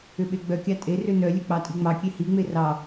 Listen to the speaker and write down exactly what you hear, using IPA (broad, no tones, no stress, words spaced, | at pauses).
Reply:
ʏɓeɡ͡bœkʲɑ tʼerʏ nœlʲœ k͡pɑtʼiŋ͡mɑkʲe hiŋ͡me rɑ